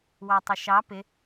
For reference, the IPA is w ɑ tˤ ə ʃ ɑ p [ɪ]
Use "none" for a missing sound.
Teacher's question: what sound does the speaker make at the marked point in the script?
ɪ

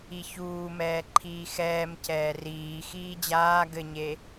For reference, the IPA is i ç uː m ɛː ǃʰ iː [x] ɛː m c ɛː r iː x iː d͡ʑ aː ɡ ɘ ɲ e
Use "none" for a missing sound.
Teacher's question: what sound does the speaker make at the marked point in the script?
x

